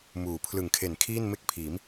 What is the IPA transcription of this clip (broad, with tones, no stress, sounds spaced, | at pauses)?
m uː˩˦ pʰ l ɯ˨˩ ŋ kʰ e˨˩ n kʰ iː˥˩ n m e˥˩ k̚ pʰ iː˩˦ m